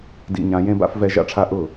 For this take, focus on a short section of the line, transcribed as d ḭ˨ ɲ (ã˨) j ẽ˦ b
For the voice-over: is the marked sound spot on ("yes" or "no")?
yes